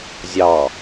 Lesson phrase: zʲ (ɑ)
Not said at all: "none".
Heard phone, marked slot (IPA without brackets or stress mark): ɑ